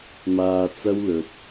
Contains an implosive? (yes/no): no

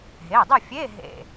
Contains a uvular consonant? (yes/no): no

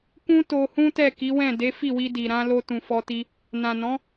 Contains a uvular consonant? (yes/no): no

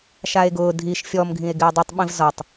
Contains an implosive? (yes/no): yes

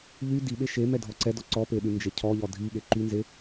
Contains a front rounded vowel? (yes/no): yes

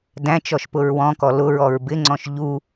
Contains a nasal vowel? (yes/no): yes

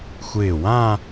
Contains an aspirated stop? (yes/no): no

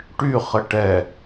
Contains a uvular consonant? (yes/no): yes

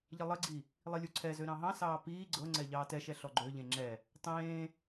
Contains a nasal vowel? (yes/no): yes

